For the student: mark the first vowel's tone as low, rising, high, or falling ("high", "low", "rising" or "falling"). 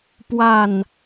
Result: falling